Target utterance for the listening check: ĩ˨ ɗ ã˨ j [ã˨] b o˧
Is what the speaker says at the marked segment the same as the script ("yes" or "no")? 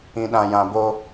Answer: yes